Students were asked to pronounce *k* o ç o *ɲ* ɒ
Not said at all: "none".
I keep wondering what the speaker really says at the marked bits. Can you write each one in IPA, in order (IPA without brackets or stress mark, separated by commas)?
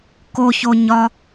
k, ɲ